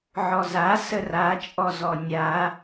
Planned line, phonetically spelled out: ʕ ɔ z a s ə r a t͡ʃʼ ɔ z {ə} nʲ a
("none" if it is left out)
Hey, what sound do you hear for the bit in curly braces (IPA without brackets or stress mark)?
ɔ